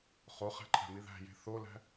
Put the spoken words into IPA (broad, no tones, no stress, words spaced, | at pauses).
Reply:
χoχæ̤ǃʼæ̤mi ðæ̤je̤ θolæ̤